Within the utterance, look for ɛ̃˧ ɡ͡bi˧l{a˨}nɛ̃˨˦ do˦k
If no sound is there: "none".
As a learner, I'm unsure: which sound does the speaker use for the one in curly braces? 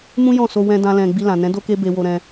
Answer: ã˨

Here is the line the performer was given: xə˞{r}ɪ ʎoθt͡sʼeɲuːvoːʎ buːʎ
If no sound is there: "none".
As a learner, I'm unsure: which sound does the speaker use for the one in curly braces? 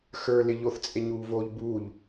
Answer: l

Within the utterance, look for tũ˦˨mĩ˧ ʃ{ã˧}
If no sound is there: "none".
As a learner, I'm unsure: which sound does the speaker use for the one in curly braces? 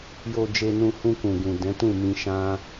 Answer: ã˦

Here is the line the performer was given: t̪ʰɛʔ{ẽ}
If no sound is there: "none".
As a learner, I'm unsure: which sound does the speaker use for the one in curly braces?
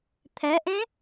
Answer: ẽ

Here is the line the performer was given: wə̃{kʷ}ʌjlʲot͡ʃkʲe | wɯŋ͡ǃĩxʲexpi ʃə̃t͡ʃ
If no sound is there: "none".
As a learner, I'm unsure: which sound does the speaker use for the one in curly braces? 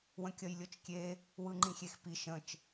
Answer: kʲ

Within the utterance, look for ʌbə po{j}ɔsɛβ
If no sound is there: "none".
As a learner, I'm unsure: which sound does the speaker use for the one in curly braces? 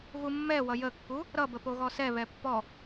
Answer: ɣ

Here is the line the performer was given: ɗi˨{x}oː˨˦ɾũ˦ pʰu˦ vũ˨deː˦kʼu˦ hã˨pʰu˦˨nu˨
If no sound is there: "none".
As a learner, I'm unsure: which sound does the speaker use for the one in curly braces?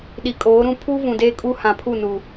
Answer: kʼ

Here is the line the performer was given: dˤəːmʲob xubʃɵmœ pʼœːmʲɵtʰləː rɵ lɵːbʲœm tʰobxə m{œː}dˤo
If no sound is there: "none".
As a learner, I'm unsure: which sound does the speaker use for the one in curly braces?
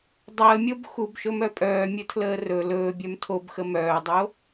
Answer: œː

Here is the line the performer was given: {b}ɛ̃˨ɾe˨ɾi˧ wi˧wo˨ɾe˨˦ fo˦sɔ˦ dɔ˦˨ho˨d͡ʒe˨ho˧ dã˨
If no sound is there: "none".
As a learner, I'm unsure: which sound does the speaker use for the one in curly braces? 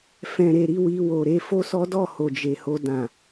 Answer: f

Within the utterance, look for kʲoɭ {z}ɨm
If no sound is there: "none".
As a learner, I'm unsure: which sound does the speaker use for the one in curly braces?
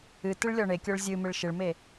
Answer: zʲ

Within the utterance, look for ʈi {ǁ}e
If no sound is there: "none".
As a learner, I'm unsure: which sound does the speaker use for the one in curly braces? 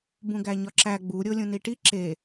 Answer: ǁ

